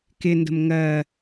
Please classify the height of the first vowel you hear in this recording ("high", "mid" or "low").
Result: high